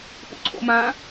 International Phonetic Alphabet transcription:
p ṵ ǀʰ o̰ m ã

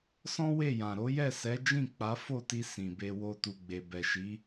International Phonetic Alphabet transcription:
s ɔ̃˦ w e˦˨ j ã˨ ɾ o˨˦ j ɛ˦˨ s ɛ˨˦ d͡ʒ ĩ˦˨ k͡p a˨˦ f o˦˨ t i˧ s ĩ˨ b e˧ w o˧ t u˨ ɡ͡b e˨ b ɛ˨ ʃ i˨˦

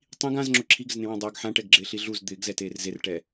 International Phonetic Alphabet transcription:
tˤ ĩ ɡ ã z ŋ͡ǁ ʊ ǁʰ i ɡ ɪ z n ẽ w ẽ dˤ a ɡ ħ ã ʈ ɛ ɡ ɡ͡ǁ ɪː ɬ i ɮ u z d̪ ɪː ɡ z ɛ t eː r z e r ʈ ɛ

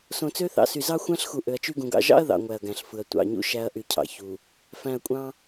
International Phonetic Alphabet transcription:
s õ˨ t͡s ø˦ θ ɑ̰˨ s y˨ z ɑ˦ xʷ æ̃˦ ɬ x u˨ ʔ ø˨ ɐ̯ t͡ʃ y˦ ɡ ũ˨ ɡ ɑ̰˨ ʒ ɑ̰˦ ɐ̯ ð ɑ̰˨ ŋʷ æ˨ ɐ̯ ɡ æ̃˨ ɬ f ɯ˨ ɐ̯ tʷ ɑ̰˨ ɲ ṵ˦ ʃ æ˦ ɐ̯ ʔ y˨ cʰ ɑ̰˨ ç u˨ | f æ̃˨ ɐ̯ kʷʼ ɑ̃˦

